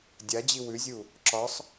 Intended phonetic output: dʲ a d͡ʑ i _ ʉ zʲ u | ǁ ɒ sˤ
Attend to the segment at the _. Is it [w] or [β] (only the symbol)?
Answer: w